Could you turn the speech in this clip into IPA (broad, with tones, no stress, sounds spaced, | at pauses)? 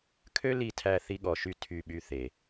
kʰ ø˦ l i˦˨ tʰ æ˦˨ θ i˦ ɠ ɔ˨ ʃ y˦ tʰ y˦˨ ɓ y˦ θ e˨